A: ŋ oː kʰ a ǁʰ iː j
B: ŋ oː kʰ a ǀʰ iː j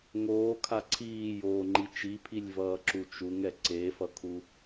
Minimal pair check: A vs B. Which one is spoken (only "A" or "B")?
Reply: B